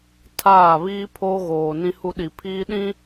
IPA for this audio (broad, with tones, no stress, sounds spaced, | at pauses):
tʰ aː˦˨ β iː˦ pʰ oː˦ ɣ oː˨ n ĩ˦ h u˦ ɗ i˨ pʰ iː˦ ɗ ĩ˦